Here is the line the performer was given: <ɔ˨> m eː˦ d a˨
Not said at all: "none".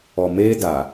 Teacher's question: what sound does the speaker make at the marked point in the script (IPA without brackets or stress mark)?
ɔ˨